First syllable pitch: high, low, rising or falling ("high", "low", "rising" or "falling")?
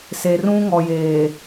low